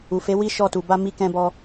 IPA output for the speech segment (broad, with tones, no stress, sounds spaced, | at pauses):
u˨ f e˨˦ w i˦ ʃ ɔ˦˨ t u˧ b a˦ m i˦ k ɛ̃˦ b ɔ˦